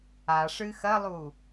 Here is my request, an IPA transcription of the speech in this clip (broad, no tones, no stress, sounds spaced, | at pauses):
a ʂ ɨ x ɐ lˠ u